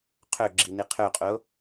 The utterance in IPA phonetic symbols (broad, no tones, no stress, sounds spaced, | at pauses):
qʰ ɵ ɡ͡ǁ i n i qʰ ɵ qʼ o